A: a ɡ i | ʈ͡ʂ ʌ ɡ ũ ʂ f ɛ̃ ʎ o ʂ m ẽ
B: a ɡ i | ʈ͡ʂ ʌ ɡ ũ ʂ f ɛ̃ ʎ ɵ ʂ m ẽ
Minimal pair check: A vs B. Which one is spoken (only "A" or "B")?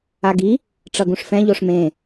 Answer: A